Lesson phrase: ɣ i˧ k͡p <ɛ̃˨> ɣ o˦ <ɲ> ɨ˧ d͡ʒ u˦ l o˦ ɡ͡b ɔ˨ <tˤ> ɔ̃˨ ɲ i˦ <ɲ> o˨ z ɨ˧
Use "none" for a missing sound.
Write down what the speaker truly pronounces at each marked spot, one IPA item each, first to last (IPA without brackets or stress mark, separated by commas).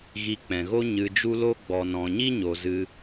ɛ̃˨, ɲ, n, ɲ